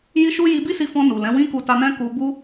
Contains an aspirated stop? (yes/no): no